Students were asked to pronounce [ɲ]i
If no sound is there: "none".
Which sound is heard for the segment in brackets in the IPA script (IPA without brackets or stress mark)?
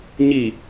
ɲ